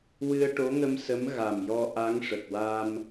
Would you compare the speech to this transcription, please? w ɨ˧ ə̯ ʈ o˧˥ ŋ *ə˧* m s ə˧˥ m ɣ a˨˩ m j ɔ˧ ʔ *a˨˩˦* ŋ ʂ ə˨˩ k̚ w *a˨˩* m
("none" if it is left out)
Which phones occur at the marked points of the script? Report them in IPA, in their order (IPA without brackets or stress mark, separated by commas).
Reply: ə˧, a˧˥, a˧